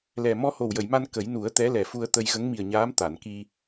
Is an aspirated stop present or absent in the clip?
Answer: absent